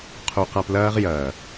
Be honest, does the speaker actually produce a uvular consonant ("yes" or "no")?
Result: yes